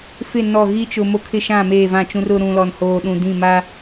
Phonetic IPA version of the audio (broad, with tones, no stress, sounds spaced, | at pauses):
f ɪ˦˨ n ɔ˦˨ ɣ i˦ t͡ʃ ʊ˨ m o˦ kʰ ɪ˦ ʃ ã˦˨ m eː˦˨ v ã˦˨ t͡ʃ ũ˦ r ʊ˦ ɾ ũ˨ l ɔ˨ n h oː˨ ɗ ũ˨ d ĩ˦˨ m a˦